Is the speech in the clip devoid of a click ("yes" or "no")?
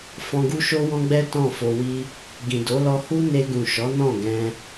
yes